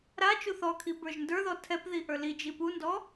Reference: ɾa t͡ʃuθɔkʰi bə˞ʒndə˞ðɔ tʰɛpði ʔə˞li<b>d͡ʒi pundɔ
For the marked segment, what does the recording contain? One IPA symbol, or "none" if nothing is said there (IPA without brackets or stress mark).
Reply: none